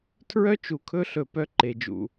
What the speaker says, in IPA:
tʰɹœ˦ t͡ʃu˨ kʰɵ˦ɬɵ˨ pœ˦ǃe˨d͡ʒṵ˨

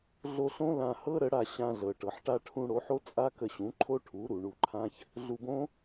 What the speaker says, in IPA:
ɮo˧ɬõ˦ lã˧hɤ˦ɾə˨˦ɽa˧ ɕã˧ɮɤ˨ʈɤ˨ħ ʈa˧ʈʰũ˧ ɽo˨˦ħo˦ t͡sʼa˦kə˧ɕũ˨˦ ǃʰo˦ʈʰu˨˦ɾu˨ ɳu˧ǃʰã˦ç | ɮu˧bõ˦

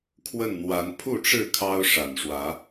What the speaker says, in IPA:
kʰwə˥˨nn̪wa˨˦n pʰu˥˨ʈ͡ʂɻ̩˥˨ kʰɑ˦ʊ̯ʂa˨˩nʂwä˨˦

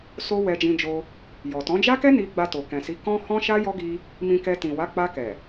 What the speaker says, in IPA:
so˦ wɛ˧d͡ʒĩ˧d͡ʒo˧ | jɔ˨tɔ̃˨˦d͡ʒa˦kɛ˦ ni˧ ɡ͡ba˧to˨kɛ̃˨si˨˦ kɔ̃˦ hɔ̃˦ʃa˦ jɔ˦ɡi˧ | mĩ˧kɛ˧ tĩ˨wa˨˦ k͡pa˧kɛ˨

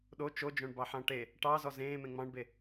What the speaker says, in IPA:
ɗo t͡ʃod͡ʒõɳbɑħɑ̃ ʈe | ʈɑzɔ zẽːmẽ ŋ͡mɑ̃ɳbe

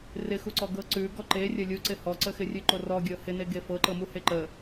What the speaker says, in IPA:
rɪxuǀɔ ɡɤǀʉ ɡɔǃe rʲəlʲuǀɪ hɔǀəxɪrʲʉ ǃorɔɡʲɤ hɪne ɡefɤǃɤ muheǃə

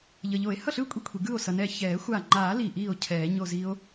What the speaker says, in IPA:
ʎʌ˩ʎo˨˩˦e̯ hʌ˥˩ɬɯː˥˩kʷʼi˥˩kʷʰi˩ ɡɯː˥˩o̯ sʌ˩ nɛ˧˩çɛː˨˩˦xʷaː˧˩ ŋ͡ǃaː˨˩˦ liː˧˩ʔiː˥˩o̯ cʰɛː˨˩˦ɲo˥˧ zi˦˥o̯

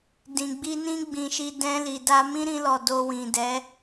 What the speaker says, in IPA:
dĩ˨ɡ͡bi˧nĩ˦ ɡ͡bĩ˧ʃi˧ dɛ̃˧li˨da˧ mĩ˦ɾĩ˧lɔ˨ do˧wĩ˨dɛ˨˦

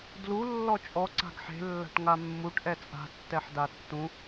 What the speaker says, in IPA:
dlu lːɔt͡ʃʼɔ ǀa̤ɡħe̤ lːa̤ʈŋamːuʈ ʔɛt͡sʼa̤ tːɛħdatːũ

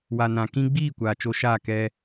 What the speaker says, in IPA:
wa˨nã˨ kĩ˧ɡ͡biː˦˨ kʷaː˨t͡ʃo˧ʃaː˦˨ kɛ˧

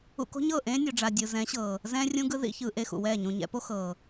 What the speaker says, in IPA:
ṵ˧ko̤˦ɲɤː˦˨ ʔẽː˦ nʲo˨ɖ͡ʐa˨dʲɯ˨ zɛ̃˨˦ɕɤː˨ | zɛ̃ː˧rʲũ˧ɡɯ˧ ðḭ˧ çɯː˨ʔe˦˨xṵ˨wɛː˦˨ ɲũ˨ɲɛ̰˨˦po˦ xɤː˨

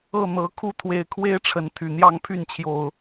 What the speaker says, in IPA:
ɤ˥˨n̪ɤ˨˦ kʰu˦t̪ʰwe˨˦ɪ̯kʰwe˦ɪ̯ʈ͡ʂʰə˨˦n t̪ʰy˨˩n̪jɑ˥˨ŋpʰy˥˨nt͡ɕʰjo˨˩ʊ̯

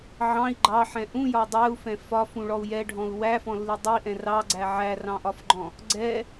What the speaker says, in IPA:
ʕɑ̃i̯ ɡ͡ǃɑħɛ̃ ʔũjɒ dˤɛu̯fɛ̃ fɒfũɭɔu̯ jɛɖʱɔ̃u̯ wæfɔ̃lːi dˤiʔɛ̃ rɑɡ͡ǀæ ʕærɑ̃ʔɒfɡ͡ǃɔ̃ | ɡ͡ǀɛ

